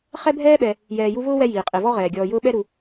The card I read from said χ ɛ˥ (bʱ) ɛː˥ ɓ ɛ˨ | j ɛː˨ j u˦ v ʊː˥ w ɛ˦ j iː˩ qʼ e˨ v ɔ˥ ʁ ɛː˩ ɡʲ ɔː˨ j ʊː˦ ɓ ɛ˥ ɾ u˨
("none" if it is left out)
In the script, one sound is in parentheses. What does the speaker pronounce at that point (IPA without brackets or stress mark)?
bʱ